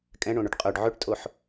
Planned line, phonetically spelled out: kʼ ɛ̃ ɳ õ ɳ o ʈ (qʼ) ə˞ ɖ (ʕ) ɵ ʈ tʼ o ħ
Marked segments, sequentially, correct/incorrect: correct, correct

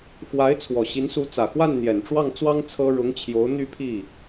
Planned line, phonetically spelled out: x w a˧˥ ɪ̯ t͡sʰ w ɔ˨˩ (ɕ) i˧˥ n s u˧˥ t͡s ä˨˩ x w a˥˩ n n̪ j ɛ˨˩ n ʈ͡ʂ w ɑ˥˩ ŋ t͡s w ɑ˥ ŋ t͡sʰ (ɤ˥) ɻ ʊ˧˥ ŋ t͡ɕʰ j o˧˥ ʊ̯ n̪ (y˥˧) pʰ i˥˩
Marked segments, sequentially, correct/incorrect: correct, correct, correct

